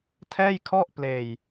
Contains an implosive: no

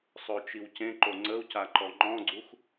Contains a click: yes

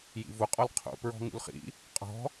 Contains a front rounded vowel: no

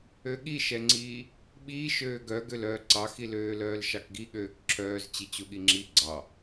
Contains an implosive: yes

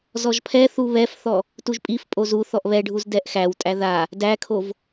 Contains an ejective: yes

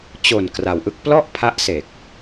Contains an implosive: no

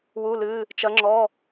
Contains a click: yes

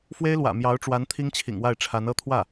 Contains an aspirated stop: yes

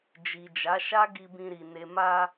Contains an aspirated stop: no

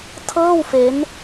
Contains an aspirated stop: yes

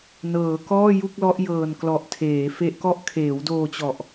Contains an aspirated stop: yes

